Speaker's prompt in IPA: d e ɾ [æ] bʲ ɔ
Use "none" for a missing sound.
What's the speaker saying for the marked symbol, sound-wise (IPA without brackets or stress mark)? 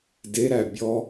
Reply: æ